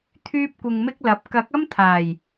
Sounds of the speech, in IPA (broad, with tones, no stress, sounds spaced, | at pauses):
t̪ʰ yː˥ p̚ kʷ ɪ˧ ŋ m ɪ˥ k̚ l ɐ˨˥ p̚ k ɐ˨˥ k̚ ɐ˥ m t̪ʰ aː˨˩ j